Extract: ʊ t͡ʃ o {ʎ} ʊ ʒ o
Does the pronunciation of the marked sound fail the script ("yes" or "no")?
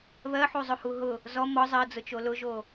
yes